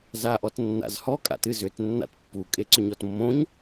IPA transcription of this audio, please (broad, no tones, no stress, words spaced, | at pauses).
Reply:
zaʔɔtnːa̰zhɔ kʼa̰tɨzʏt nːa̰tpːu kʼeǀʏɲɔtmːõɲ